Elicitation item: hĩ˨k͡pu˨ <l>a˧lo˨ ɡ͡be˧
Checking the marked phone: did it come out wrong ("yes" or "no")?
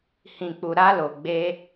yes